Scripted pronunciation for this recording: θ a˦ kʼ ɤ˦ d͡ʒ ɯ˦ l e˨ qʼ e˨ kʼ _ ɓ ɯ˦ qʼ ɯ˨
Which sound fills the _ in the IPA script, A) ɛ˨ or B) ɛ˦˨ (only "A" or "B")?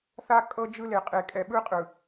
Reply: A